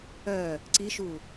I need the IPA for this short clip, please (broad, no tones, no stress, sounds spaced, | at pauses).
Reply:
œ | ǀ i ʃ u